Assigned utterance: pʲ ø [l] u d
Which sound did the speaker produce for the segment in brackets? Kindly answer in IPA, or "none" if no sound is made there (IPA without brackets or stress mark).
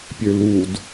l